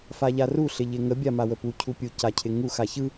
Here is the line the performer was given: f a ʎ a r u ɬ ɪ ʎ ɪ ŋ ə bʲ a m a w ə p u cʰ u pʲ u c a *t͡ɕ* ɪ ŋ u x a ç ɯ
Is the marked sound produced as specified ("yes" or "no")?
no